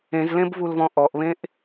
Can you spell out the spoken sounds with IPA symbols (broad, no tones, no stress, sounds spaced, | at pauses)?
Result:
ẽ z l ẽ b v u l v ɔ̃ ʔ ɔ ʔ β ẽ ʔ